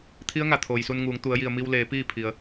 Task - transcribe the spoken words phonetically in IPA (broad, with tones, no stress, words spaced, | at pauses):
t̪ʰi˧˥ə̯ŋa˩ t̪ʰoː˩jsu˧nŋuː˩˧ŋ t̪u˩˧ə̯ji˩ə̯mi˧wleː˩˧ piː˥˨pʰi˩ə̯